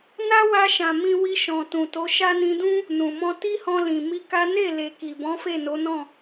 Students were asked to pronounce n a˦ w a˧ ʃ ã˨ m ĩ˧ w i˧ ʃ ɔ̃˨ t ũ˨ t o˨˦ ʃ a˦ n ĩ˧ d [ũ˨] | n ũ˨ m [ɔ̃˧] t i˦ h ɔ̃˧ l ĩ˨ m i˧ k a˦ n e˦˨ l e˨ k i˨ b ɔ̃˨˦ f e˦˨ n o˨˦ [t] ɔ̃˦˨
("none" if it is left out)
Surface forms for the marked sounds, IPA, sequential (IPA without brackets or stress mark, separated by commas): ũ˦, ɔ̃˧, n